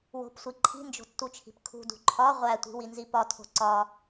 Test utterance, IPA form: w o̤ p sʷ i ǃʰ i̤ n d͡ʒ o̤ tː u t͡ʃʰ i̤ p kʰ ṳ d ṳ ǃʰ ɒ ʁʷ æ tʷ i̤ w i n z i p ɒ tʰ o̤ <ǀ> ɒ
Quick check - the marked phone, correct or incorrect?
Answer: correct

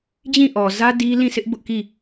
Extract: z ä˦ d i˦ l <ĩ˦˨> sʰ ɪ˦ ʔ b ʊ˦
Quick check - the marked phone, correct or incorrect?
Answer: correct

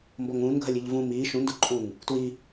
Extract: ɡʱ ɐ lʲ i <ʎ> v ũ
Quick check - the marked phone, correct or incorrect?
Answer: correct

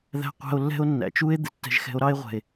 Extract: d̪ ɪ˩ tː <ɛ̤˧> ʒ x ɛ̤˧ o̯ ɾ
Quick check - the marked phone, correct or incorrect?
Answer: correct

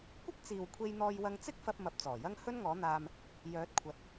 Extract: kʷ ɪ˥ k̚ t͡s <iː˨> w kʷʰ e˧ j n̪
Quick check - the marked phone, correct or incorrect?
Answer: correct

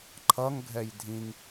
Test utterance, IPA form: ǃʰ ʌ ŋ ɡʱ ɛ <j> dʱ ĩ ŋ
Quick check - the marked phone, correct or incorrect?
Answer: correct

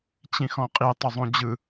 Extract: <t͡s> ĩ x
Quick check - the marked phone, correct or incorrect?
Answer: incorrect: t͡ɕ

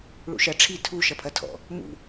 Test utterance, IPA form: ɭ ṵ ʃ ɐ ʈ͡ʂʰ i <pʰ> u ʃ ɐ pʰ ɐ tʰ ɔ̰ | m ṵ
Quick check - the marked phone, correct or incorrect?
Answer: incorrect: tʰ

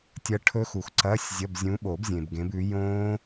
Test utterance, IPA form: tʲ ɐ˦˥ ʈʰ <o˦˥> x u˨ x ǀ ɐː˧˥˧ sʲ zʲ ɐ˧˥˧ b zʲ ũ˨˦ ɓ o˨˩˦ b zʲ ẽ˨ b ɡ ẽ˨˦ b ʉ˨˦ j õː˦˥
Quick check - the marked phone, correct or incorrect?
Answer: incorrect: ɵ˦˥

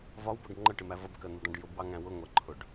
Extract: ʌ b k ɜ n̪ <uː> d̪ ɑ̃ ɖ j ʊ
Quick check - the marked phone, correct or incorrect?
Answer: incorrect: u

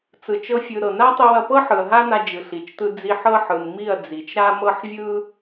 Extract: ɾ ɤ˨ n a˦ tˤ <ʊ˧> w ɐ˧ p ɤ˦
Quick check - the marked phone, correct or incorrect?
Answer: incorrect: ɯ˧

